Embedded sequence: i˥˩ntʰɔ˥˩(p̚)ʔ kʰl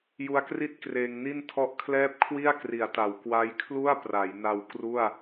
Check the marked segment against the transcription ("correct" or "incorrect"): incorrect